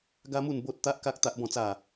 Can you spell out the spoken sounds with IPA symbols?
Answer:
ɡ a˦ m u˥˧ n b o˦ t̚ t̪ a˦ ʔ k a˦ k̚ t̪ a˦ ʔ b ɔ̃˥˧ t͡s a˥˧

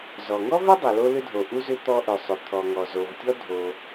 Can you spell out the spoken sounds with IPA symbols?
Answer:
z ɔ˩ ŋ ɔ˥ v ʏ˥ dˤ ʏ˩ l o˥ l ʏ˥ dʱ o˩ ʔ u˥ z ʏ˥ t̪ ɔ˥ ʔ ʏ˩ sˤ ʏ˩ t̪ʰ ɔ˩ ŋ ɔ˩ z o˩ v tʲ ɔ˥ dʱ o˩

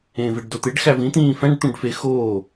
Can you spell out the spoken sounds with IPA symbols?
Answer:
ẽː v e ɖ d o t̪ e ɖ x æ v ĩ t̪ ĩː f æ̃ ɖ t̪ ũ ɖ f e x oː

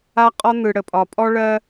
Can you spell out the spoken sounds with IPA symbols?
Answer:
a˦ qʼ ɒ˦ n̪ ɯ˨ ɽ ə˨ pʼ ɒ˨ pʼ ɔ˦ ɭ ɜ˦

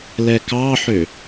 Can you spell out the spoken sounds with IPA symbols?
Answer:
l ɛ k ɑ ħ ø

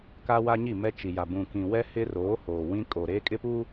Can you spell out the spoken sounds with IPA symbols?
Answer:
k a˦ w a˦ ɲ i˦˨ m ɛ˦ t͡ʃ i˨ j a˨ b ũ˨ k ĩ˨ w ɛ˦ h ɪ˦ r oː˨˦ h oː˨ w ĩ˦ kʼ o˨ ɾ eː˦ kʼ ɪ˦ p uː˦

